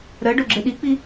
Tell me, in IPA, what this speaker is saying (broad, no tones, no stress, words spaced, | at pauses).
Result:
ɾɜɖo ɡ͡ǁeɗik͡pi